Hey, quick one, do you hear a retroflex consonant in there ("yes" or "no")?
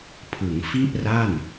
no